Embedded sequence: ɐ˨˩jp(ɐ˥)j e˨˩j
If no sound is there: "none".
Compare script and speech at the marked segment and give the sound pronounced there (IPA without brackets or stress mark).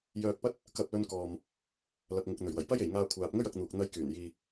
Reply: ɐ˥